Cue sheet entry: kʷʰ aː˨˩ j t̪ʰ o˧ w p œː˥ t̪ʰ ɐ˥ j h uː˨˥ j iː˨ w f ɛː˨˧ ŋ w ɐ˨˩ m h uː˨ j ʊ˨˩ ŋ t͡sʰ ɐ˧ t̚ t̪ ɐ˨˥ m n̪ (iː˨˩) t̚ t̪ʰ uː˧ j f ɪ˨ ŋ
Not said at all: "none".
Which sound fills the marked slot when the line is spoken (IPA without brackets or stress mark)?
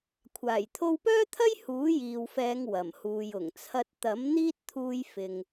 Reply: iː˥